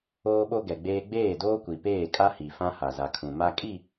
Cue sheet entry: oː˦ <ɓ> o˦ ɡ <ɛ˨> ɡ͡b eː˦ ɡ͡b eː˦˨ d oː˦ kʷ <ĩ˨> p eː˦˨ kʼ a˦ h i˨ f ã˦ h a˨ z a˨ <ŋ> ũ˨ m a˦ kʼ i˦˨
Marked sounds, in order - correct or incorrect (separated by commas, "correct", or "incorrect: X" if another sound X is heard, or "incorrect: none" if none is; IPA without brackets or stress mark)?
correct, correct, incorrect: i˨, incorrect: kʰ